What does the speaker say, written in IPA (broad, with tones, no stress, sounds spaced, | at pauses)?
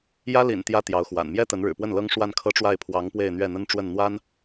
j ä˥ l ḭ˨˩ n t̪ j ä˥ t̪ j ɑ˧˥ ʊ̯ x w a̰˨˩ n m j ɛ˥ t̪ ə˧˥ n ɻ ɻ̩˨˩ p w ə˥˩ n l ɤ˥ ŋ ʂ w a˥˩ n kʰ ɤ˥ ʈ͡ʂ w a˥˩ ɪ̯ pʰ w ɑ˧˥ ŋ p w e˥˧ ɪ̯ n̪ ɥ ɛ˥˩ n̪ ə˥ n ʈ͡ʂ w ə˥˩ n n̪ w a˥ n